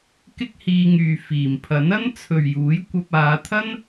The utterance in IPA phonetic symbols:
kɪ˥k̚hiː˧ŋyː˨ fiː˨˩mpʰɐ˨˥n ɐ˥nt͡sʰɵ˨ɥjuː˨˥j kʷɐ˧p̚aː˨˧t̪ʰɐ˥n

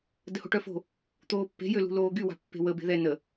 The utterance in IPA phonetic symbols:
dəho̤ʈœfo̤ | t̪oːpːe̤ jølṳloːɡy wa̤pːe̤wə be̤ðɛ nə

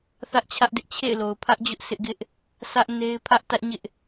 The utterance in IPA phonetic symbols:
θä˦ʔt͡ɕʰä˦ʔdɪ˦ʔ t͡ɕʰḛ˦˨ɪ̯lo˨ʊ̯ pʰä˦ʔd͡ʑʊ˦ʔ sɪ˦ʔɡɪ˦ʔ | sʰä˦ʔ ne˦ɪ̯pʰä˦ʔ tä˦ʔɲɪ˦ʔ

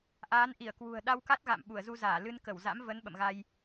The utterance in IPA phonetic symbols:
ʔaː˨˦nʔi˧˩ə̯kwṳ˨˩ə̯ ɗa˧wka˦˥t̚ɣa̰˧˨m ɓu˧˩ə̯zu˧zaː˧˩ lɨ˧n kə˧˩wza̰˧˥mvə˨˦n ɓə̰˧˨mɣa˧j

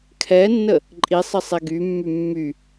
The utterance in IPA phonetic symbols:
kʰɛnːə | ǃʼisˤə sˤeɡymːy mːy

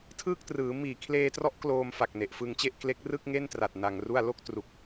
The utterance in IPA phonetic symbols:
tʰɯː˥˩k̚trɯː˩˦ miː˨˩kʰleː˧trɔ˦˥ʔ kloː˧mfa˨˩k̚ ne˨˩ʔfɯ˧ŋt͡ɕe˥˩ʔ kle˦˥k̚rɯ˥˩k̚ŋe˥˩ntra˨˩t̚ na˧ŋru˥˩a̯ lo˥˩k̚tru˨˩k̚

